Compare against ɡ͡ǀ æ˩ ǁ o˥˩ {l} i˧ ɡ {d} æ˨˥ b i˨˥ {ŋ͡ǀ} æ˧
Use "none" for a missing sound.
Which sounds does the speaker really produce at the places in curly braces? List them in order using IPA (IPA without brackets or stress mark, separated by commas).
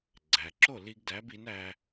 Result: l, d, n